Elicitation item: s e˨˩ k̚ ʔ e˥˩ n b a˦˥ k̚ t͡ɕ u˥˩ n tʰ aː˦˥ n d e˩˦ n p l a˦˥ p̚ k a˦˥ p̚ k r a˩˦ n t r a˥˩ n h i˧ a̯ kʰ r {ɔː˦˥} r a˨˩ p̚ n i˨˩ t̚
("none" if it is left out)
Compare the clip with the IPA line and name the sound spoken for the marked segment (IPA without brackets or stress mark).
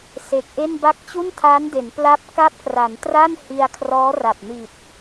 ɔː˦˥